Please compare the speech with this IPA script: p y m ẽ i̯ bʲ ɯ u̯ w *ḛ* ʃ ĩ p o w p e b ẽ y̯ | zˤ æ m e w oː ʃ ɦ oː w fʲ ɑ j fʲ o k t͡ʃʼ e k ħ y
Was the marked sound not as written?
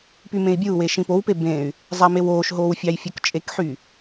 yes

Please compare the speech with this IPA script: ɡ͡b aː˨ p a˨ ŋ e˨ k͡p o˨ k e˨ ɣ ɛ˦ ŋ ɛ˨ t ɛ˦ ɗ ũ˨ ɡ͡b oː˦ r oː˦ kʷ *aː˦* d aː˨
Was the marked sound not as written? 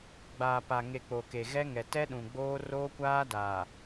no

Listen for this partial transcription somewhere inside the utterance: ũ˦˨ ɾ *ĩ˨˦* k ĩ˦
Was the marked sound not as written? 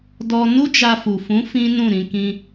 no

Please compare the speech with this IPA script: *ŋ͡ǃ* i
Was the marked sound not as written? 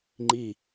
no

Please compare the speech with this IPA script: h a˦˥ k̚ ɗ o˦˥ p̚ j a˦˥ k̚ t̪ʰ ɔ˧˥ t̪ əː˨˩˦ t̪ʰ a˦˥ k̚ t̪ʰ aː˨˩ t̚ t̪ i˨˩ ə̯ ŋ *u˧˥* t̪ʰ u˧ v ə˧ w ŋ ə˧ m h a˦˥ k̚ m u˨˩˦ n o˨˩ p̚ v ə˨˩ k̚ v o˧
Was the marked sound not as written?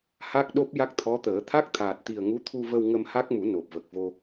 no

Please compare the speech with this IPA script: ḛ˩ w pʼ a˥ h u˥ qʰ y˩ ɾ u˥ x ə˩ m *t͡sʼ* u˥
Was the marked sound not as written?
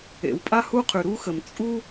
no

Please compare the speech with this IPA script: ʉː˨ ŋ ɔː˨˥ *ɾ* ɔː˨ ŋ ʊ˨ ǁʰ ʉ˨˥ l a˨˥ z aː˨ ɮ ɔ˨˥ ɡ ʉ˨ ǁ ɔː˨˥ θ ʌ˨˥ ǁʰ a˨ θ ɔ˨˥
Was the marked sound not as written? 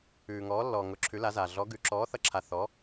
yes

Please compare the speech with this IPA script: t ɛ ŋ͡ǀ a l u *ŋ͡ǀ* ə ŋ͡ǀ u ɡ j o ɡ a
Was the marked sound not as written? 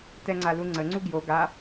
no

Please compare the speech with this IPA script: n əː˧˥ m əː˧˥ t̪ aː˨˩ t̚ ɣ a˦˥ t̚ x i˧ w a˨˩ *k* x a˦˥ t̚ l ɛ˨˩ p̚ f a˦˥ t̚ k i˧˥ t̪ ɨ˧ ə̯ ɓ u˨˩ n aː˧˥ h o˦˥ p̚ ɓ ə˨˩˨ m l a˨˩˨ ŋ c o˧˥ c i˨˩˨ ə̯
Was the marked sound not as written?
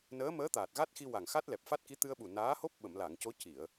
yes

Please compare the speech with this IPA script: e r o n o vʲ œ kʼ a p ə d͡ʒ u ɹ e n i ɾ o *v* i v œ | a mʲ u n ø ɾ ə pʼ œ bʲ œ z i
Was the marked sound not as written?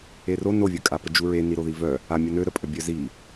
yes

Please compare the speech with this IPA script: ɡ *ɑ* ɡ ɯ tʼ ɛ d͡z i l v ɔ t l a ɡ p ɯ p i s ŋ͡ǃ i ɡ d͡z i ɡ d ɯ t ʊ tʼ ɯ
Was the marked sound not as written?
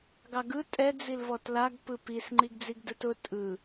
no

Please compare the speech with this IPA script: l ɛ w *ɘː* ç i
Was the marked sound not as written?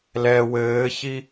no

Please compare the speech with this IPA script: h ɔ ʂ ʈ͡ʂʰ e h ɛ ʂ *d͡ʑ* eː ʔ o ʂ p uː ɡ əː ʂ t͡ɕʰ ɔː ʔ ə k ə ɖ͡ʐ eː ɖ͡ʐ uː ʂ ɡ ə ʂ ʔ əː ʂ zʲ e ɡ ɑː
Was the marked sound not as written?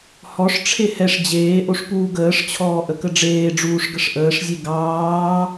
no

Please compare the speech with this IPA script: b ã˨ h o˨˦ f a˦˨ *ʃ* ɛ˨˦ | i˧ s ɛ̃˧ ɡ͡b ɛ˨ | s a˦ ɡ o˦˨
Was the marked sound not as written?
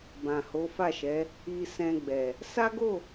no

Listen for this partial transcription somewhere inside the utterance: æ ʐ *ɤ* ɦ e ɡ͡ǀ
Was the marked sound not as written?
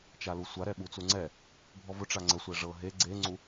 no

